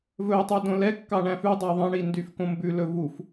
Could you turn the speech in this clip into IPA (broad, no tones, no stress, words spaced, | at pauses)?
vɵ tˤydõlɛkːɑ ɳæ̃fʉdˤæ ðˤɑ̃ɳi ndyfkõmbʉlɵ vuf